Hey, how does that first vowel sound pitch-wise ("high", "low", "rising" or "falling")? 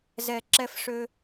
high